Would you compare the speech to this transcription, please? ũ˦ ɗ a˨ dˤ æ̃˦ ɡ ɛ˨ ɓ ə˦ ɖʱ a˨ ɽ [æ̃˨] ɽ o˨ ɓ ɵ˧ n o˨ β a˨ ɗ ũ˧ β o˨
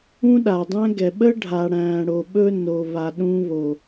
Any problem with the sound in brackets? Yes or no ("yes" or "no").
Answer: no